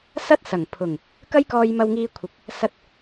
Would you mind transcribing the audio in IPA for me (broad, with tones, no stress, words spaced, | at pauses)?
sɐ˥t̚ sɐ˨˩ŋ pʰʊ˨˩ŋ | kɐ˥jkɔː˧j mɐ˧wŋiː˧kʷʰɪ˨k̚ | sɐ˧t̚